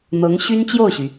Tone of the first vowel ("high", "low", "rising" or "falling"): rising